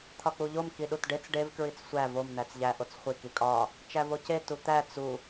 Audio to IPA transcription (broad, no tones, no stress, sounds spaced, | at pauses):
t̪ʰ ɒ k͡p u ʎ o m k i ɗ u t ɖ e t͡s ɖ e v k ɹ i t͡s sʷ æ v o m n̪ æ t͡s ʎ æ ʔ o t͡s χʷ i k i kʼ ɒ | t͡ʃ æ v o c e t u t̪ æ t͡s u